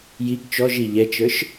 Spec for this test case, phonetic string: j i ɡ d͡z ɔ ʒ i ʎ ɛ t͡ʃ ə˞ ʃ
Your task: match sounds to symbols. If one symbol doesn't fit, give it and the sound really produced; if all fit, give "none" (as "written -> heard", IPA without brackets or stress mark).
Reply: d͡z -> t͡ʃ